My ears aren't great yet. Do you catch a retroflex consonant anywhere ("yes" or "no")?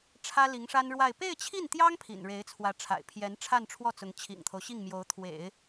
yes